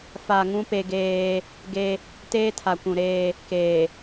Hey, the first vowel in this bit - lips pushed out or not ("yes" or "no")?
no